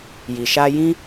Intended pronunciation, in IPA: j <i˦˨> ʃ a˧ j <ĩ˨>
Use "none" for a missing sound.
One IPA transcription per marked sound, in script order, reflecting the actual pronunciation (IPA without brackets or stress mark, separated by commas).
i˨, ĩ˦